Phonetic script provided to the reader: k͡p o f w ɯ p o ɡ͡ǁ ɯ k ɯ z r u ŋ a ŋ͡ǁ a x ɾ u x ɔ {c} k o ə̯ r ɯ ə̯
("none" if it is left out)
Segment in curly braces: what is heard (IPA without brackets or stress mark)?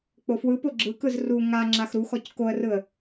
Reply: c